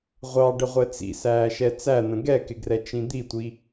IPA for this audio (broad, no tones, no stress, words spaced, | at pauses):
ʁʷɑɖəʁʷɛ t͡sḭsæːʃɛ t͡sæn̪ə̃ ɡɛkɪɡrɛt͡ʃĩ d̪itʷi